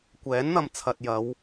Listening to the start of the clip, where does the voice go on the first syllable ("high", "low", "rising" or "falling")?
rising